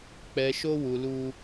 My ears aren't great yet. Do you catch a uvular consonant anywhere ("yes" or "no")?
no